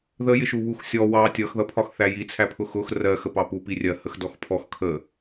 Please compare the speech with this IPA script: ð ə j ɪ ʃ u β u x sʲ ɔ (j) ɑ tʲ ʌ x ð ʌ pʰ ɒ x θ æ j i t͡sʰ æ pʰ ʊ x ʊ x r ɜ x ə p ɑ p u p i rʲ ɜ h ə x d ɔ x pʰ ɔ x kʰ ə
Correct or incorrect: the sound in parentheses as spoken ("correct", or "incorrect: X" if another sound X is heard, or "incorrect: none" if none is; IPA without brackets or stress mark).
incorrect: w